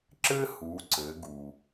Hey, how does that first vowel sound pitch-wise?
high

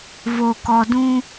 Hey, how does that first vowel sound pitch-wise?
low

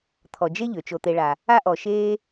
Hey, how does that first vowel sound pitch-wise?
low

